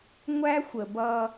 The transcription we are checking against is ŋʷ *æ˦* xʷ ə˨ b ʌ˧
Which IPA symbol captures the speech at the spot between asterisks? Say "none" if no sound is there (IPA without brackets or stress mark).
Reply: æ˦